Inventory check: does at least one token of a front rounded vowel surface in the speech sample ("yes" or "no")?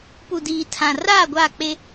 no